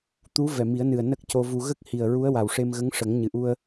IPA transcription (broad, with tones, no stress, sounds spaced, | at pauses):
t̪ u˧˥ v ɛ˨˩ m i˨˩˦ ə̯ n ɨ˨˩ ə̯ n ə˦˥ k̚ c o˧ v u˧ ɣ ə˦˥ k̚ h i˨˩ ə̯ ɹ u˧˥ ə̯ w a˨˩ w ʂ e˧ m ɣ ə˧˥ ŋ ʂ ə˨˩˦ ŋ ɲ ɨ˨˩ ʔ u˧ ə̯